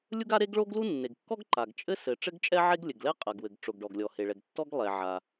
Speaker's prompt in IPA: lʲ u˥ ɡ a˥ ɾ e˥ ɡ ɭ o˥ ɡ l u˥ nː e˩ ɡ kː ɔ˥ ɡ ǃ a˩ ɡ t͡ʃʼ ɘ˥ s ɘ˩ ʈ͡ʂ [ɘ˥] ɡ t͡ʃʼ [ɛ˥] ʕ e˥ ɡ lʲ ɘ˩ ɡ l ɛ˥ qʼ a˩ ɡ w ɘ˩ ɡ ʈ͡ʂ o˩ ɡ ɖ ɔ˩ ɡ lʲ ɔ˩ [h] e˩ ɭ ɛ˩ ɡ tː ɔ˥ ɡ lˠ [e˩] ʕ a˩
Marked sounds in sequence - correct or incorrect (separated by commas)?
correct, correct, correct, incorrect